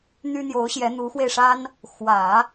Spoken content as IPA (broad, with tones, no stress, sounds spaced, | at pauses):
n̪ y˥ n̪ j o˧˥ ʊ̯ ɕ j ɛ˧˥ n̪ u˧˥ x w e˧ ɪ̯ ʂ a˥ n | x w ä˨˩˦